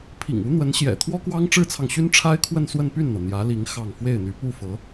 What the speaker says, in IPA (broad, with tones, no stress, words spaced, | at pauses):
pʰḭ˨˩ŋu˧˥n̪wə˧˥nɕjɛ̰˨˩ t̪ʰwɔ˥kwɑ˥ŋʈ͡ʂɻ̩˥t͡sʰɑ˨ŋ ɕy˥nʈ͡ʂʰa˥ɪ̯kʰwə˥˧n swə˥˧npy˥˩nn̪ɤ˩ n̪jä˧˥li˧˥ŋ xɑ˥˧ŋ fwe˥˩ɪ̯n̪y˧˥ pu˥˩fɤ˧˥